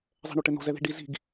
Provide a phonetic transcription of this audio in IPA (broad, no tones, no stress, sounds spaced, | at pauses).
zˤ ɛ̤ ɳ o ʈ ɘ n o̤ z ɛ ð i̤ ɖ i z i̤ ɡ